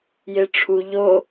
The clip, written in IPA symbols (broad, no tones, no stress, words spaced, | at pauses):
jeʈ͡ʂʰu ʎo